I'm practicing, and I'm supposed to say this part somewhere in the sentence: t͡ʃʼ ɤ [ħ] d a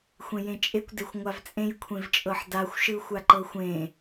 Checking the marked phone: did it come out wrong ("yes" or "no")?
no